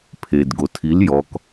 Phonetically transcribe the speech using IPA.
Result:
pʰ e d ɡ o tʰ i l j ɔ k

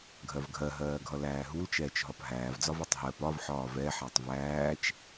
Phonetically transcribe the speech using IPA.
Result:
ɡʱ ɜ v ɡʱ ɜ ɦ ɜː ɡʱ ʌ l æː ɦ u l t͡ʃ ɛː t͡ʃ ɦ ɒ p ɦ æː v d͡z ɒ v ʌ tˤ ɦ ɜ p ɒ v ħ ɒː v ɛ ħ æ tˤ v æː t͡ʃ

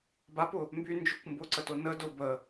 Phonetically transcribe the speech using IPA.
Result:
b a p ʊ | m b y n d͡ʒ ʏ kʷ m b ʊ ǀ ə t ʊ n ə d ʊ b ə

